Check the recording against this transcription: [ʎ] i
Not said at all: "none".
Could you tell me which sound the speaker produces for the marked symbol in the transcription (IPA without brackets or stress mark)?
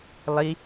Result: lˠ